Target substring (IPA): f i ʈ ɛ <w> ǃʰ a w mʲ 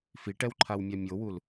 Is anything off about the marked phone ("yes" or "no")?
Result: no